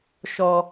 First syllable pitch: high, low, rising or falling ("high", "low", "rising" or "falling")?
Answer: high